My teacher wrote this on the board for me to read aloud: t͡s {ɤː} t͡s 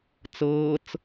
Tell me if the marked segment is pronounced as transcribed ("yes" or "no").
yes